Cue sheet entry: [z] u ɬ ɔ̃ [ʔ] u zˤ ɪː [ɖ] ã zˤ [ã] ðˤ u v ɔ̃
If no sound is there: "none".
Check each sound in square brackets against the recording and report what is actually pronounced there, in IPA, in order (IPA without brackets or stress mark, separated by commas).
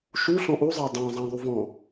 ʃ, ʔ, dˤ, ã